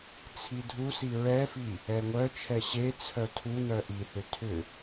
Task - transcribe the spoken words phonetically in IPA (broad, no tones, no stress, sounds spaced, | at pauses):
t͡sʰ i dʱ u s i ɹ ɛ f i | ɛ ŋʷ œ t͡ʃʰ ɛ ɕ e t͡sʰ œ tʰ u n œ ʔ i θ ʏ tʰ ʏ